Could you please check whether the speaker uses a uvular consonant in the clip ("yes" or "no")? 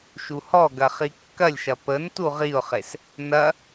yes